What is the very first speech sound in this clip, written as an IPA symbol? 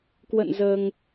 k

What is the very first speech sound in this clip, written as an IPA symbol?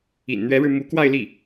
ḭ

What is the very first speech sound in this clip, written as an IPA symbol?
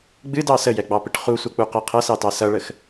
ɡ͡b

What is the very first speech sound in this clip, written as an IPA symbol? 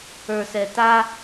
ə˞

